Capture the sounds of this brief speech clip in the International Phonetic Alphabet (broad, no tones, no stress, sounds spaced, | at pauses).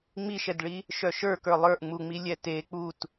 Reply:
ŋ͡m i ʃ ɛ d ɭ i | ʃ œ ʃ ə˞ k ə˞ lˠ ə˞ ʔ ŋ͡m u ŋ͡m i lʲ ɛ t e k͡p u t